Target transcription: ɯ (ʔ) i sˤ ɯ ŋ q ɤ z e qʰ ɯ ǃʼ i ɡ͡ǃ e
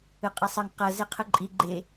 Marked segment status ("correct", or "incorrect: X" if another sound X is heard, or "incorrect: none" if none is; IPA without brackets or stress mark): incorrect: qʼ